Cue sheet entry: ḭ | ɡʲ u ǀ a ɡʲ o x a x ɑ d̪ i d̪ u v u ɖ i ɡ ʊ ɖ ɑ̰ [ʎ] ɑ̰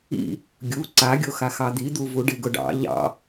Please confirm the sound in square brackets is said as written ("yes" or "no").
yes